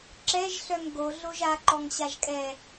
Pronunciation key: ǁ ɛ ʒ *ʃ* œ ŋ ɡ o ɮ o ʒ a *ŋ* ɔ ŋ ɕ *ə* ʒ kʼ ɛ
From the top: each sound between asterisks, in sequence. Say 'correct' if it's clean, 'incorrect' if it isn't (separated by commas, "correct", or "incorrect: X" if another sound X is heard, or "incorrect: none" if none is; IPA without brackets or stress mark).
incorrect: ɬ, incorrect: ǃ, incorrect: a